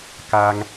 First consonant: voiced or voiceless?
voiceless